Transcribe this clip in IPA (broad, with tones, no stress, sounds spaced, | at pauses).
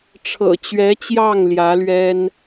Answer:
ʈ͡ʂʰ ɤ̰˨˩ t͡ɕ ɥ ɛ˧˥ t͡ɕ j ɑ˥˩ ŋ l j ä˧˥ l ɥ ɛ˥ n